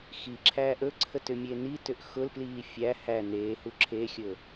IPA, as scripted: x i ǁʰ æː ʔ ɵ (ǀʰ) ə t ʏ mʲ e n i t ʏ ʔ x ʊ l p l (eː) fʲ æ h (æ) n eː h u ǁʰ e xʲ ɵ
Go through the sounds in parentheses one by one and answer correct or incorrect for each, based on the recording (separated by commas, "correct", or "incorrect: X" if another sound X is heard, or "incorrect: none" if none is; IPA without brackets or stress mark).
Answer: correct, incorrect: iː, correct